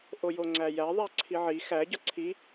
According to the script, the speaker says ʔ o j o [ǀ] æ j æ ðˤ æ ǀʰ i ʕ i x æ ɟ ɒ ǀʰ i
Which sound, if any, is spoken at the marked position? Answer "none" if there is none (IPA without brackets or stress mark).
ŋ͡ǀ